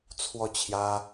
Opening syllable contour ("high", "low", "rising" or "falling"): falling